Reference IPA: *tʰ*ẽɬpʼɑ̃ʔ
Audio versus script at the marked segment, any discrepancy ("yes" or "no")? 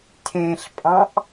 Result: no